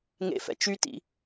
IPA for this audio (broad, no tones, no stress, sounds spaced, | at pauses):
ŋ ḛ f ɛ̰ t͡ʃ y t ḭ